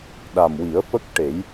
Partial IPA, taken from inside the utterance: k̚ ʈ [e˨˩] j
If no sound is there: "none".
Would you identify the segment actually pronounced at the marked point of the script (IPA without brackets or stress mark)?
e˨˩˦